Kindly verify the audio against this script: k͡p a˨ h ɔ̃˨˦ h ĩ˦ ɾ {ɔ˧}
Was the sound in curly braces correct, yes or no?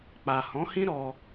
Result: yes